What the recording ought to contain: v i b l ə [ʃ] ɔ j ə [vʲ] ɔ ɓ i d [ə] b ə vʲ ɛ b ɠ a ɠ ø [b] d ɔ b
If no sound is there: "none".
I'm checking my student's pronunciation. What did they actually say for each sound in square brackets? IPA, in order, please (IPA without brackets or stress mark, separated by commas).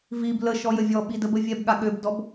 ʃ, vʲ, ə, b